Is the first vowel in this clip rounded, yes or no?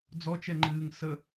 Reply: yes